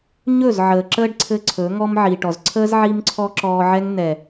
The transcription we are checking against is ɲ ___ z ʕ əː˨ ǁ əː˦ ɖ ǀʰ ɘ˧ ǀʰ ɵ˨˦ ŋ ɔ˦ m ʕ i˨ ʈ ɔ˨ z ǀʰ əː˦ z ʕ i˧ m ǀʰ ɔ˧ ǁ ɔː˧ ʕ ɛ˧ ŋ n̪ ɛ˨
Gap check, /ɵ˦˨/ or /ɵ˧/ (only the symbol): ɵ˦˨